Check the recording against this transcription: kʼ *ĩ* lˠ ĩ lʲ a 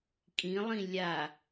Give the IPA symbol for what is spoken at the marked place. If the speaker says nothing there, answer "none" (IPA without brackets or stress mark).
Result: ĩ